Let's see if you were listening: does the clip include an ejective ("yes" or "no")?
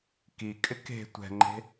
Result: yes